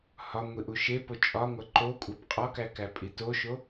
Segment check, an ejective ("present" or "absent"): present